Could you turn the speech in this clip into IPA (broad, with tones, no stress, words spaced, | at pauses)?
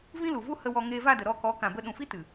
vĩ˦lu˨vu˦ hə˧wɔ˧ ŋeː˧va˦˨də˨ ɾɔ˦˨kɔ˨˦ kã˨bə˧ ɗũ˨fi˦tɨ˨